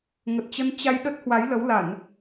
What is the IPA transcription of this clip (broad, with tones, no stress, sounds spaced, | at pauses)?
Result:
ŋ ə˨˩ t̚ t͡ɕ ə˧ n t͡ɕ a˧ j ɗ ə˦˥ t̚ h w a˨˦ j l ə˨˦ w l a˧˩˨ n